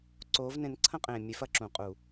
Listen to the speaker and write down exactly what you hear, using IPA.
ǀ oː˧˥ v n ẽ˧˥ n ǀʰ ɐ̃˥ qʼ ẽː˨ mʲ e˧˥ f ɐ˨˩˦ ǁ ũ˨˩˦ qʼ u˨˩˦

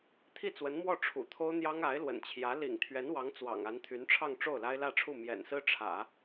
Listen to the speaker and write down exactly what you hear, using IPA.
t̪ʰ i˥˩ t͡s w ə˧˥ n m w ɔ˥˩ ʈ͡ʂʰ ṵ˨˩ t̪ʰ o˥ ʊ̯ n̪ j ɑ˥ ŋ a˧˥ ɪ̯ l w ə̰˨˩ n t͡ɕʰ j ä˧˥ l ḭ˨˩ ŋ t̪ʰ ɥ ɛ˧˥ n w ɑ˧˥ ŋ t͡s w ɑ̰˨˩ ŋ a˧˥ n t̪ʰ y˧˥ n ʈ͡ʂʰ ɑ˥˧ ŋ ʈ͡ʂ o˥˩ ʊ̯ l a˥ ɪ̯ l ä˥˧ ʈ͡ʂʰ u˥˩ m j ɛ̰˨˩ n s ɹ̩˥ ʈ͡ʂʰ ä̰˨˩˦

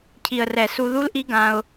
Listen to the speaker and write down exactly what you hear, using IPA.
cʰ i˨ ə̯ r ɛ˨ s u˧ ð u˦ l ʔ i˦ ɡ ã˧ ʊ̯

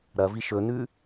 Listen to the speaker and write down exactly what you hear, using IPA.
ɾ ɐ v i ʃ ɵ n ʉ

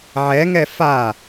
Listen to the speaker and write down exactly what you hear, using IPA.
ʕ ɛ ŋ ɛ f a

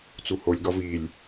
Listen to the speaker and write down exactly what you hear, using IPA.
t͡s u h o lʲ ɡ ɒ v i lʲ

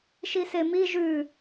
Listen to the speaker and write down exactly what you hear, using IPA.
ʃ i s e m i ʒ ʉ

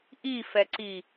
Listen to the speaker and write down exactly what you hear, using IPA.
ʔ i f ɛ ǀ i

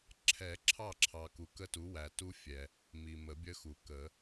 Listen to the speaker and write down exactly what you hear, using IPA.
ǁʰ ɛ˨˩˦ ǁʰ ɑ˥˩ ǁʰ ɑ˨ k u˨ k ə˦ t u˩˥ w æ˨ t u˦ fʲ ɛ˨ | m i˨ m ə˨˩˦ bʲ ə˦ x u˨˩˦ k ə˨˩˦

